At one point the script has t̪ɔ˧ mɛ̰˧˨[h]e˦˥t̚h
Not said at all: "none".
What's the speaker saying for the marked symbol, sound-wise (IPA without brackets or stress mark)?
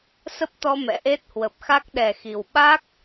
ʔ